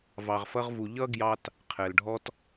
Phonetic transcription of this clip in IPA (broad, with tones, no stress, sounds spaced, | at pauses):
v ɑ˨ ʁ f ʌ˦ ʁ v u˨ ʎ ʌ˥ ɡ j ɑ˦ t | qʰ ɛ˩ l ɖʱ ɔ˦ t